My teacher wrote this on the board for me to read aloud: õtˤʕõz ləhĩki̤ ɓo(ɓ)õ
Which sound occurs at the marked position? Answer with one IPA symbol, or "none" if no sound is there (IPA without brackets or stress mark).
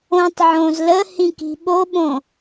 ɓ